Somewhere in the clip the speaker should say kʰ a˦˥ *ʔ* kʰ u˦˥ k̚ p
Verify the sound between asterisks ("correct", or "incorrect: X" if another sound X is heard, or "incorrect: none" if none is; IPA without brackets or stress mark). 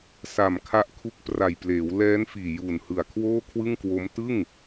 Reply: correct